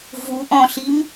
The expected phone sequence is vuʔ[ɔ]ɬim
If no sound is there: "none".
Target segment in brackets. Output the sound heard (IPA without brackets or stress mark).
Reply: ɔ̃